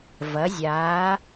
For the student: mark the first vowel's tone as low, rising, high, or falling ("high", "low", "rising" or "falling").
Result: rising